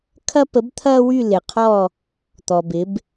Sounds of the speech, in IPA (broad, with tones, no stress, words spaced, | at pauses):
kʰɐ˦pə˨˥bt̪ʰɐː˦wy˦˨ lɪ˨qʰɔ˦˨ | t̪ɔ˨bɪ˨˥b